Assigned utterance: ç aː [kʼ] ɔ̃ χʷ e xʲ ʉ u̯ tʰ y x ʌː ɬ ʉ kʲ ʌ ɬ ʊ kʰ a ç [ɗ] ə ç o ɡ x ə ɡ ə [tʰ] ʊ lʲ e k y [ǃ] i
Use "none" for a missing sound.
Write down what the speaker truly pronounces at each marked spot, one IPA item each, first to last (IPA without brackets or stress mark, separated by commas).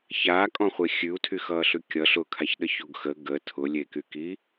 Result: kʼ, ɗ, tʰ, k